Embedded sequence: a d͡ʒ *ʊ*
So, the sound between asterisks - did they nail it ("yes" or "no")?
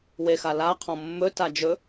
no